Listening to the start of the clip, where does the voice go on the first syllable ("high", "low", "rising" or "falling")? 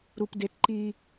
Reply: high